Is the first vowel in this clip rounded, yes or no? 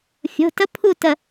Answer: yes